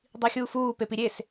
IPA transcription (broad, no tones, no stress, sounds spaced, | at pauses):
dˤ i xʲ uː f uː p e p i ɾʲ e s